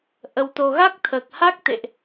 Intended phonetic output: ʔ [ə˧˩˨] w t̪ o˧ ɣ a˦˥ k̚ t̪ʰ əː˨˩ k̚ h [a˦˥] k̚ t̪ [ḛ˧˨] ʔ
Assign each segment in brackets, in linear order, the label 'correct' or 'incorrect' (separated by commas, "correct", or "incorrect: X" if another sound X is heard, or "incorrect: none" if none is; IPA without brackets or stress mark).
incorrect: ə˧, correct, correct